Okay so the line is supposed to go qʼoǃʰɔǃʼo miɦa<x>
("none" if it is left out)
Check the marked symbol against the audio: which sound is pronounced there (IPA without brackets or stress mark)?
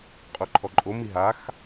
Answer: x